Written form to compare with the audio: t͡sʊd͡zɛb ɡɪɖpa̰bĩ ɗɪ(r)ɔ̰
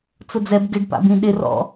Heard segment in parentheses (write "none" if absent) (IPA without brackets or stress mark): r